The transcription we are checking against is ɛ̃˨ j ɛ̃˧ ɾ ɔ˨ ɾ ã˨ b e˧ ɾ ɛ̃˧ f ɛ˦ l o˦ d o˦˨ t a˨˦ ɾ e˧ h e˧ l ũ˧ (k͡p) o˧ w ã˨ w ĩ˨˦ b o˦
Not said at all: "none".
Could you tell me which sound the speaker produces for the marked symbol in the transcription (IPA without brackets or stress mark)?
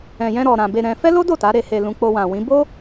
k͡p